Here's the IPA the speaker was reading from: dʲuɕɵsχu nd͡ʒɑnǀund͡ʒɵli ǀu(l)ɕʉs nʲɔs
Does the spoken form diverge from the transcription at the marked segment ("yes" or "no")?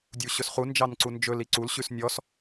no